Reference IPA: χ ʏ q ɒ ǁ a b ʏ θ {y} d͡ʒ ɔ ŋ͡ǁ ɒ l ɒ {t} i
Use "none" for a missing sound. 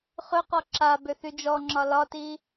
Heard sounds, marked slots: y, t

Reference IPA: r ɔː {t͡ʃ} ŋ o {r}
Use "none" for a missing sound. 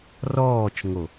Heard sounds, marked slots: t͡ʃ, none

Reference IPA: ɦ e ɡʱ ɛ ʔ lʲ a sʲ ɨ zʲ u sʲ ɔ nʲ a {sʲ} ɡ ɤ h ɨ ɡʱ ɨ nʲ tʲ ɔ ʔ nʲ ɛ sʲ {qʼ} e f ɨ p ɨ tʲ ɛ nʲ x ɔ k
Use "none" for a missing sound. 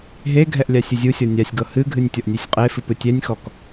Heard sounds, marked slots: sʲ, qʼ

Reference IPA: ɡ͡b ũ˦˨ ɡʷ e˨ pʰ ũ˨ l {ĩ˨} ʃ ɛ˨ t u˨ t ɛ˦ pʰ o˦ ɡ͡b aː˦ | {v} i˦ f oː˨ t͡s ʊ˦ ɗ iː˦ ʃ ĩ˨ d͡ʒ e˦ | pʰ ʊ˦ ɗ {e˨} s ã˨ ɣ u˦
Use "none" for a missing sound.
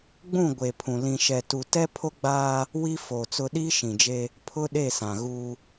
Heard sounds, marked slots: ĩ˨, w, e˦˨

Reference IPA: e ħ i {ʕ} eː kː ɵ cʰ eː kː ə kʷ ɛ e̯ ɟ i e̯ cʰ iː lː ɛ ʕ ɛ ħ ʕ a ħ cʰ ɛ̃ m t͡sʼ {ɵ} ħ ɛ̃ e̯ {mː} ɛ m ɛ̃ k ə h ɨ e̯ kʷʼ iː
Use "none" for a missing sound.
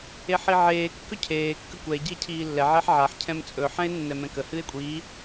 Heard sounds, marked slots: ʕ, ɵ, nː

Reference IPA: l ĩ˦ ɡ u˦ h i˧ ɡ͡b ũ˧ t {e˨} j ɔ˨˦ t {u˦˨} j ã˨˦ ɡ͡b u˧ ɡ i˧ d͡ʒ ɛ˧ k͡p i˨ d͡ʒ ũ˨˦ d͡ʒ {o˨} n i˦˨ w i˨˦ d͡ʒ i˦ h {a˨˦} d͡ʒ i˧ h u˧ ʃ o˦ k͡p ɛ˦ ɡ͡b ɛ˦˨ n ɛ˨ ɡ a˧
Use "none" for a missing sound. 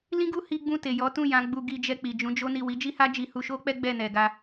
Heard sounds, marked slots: e˨, ũ˦˨, o˦, a˦

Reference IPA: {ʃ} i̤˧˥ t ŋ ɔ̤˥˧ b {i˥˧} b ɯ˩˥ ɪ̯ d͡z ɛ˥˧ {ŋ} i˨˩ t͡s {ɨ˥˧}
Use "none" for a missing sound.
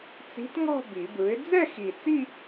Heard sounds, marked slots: t͡s, i˨˩˦, x, i˥˧

